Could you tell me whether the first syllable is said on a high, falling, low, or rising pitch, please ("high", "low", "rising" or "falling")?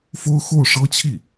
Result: high